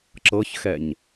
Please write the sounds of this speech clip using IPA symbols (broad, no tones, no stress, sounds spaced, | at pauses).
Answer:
ǁ ɤ ç x ɛ ɲ